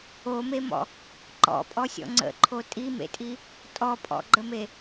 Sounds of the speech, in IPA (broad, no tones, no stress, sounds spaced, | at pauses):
o m e m ɔ̰ | ǃ ɔ̰ pʼ ɔ sʲ ɔ̰ ŋ͡ǀ ə̰ ǃʰ o tʼ i m ḛ tʼ i | tʼ ɔ pʼ ɔ̰ ɡ͡ǃ ə m e